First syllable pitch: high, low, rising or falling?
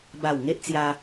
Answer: low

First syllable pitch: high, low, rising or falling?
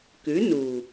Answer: rising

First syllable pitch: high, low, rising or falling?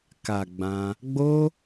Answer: low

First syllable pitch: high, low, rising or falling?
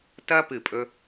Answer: high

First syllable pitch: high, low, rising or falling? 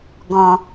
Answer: low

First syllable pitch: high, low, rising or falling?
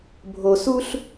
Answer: low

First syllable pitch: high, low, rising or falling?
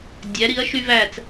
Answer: rising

